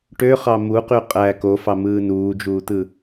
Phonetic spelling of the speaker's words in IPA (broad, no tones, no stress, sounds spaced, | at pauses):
ʈ ø χ ɑ m u q y qʼ æ k o f ɑ m ɯː n uː d͡ʒ uː t̪ ɯ